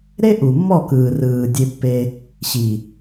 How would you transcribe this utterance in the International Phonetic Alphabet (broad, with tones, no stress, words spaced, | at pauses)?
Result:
ɾe˦ʔu˨mːɔ˦˨kɯː˨ rɯː˨dʲe˧pːe˧ | ɕi˨